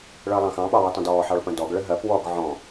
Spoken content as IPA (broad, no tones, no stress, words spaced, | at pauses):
ɭəːlˠɑ̃xɑ̃ɓɑ wɪtˤə̃dɔː ħɑɭpə̃dɔɡ ɭəɦɜp wɔɡ ʕɔ̃